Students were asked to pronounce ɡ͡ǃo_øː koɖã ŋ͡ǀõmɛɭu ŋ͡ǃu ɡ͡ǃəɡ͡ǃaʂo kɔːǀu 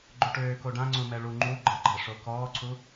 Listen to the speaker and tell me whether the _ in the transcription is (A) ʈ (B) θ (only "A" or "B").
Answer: A